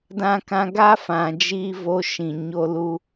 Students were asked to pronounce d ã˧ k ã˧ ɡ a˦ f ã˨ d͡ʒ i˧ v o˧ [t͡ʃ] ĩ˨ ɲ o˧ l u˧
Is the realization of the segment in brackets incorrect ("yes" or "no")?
yes